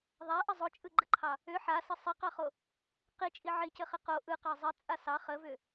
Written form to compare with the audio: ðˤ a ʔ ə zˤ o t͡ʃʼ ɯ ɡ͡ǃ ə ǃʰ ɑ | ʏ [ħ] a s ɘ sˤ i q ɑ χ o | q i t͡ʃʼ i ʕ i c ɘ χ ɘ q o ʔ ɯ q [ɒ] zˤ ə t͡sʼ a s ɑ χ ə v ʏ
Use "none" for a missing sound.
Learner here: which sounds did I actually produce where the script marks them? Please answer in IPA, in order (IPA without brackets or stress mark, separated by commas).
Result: ħ, ɑ